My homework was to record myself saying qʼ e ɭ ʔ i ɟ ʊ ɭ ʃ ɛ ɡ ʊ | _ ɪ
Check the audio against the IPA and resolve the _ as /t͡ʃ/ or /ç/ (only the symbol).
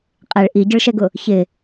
ç